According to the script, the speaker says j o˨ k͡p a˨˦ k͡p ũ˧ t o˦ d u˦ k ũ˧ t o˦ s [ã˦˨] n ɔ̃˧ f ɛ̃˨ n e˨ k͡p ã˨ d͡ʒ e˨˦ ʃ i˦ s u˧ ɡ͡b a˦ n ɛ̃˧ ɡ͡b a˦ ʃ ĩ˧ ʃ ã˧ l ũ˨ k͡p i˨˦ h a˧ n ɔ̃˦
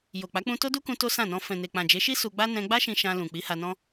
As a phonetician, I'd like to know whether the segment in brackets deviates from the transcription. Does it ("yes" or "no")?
no